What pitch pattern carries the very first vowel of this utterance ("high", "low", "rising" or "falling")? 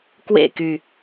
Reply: falling